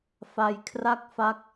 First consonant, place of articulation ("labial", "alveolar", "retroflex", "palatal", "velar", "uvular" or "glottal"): labial